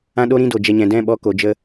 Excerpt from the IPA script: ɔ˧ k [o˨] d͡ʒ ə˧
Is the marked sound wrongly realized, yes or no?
no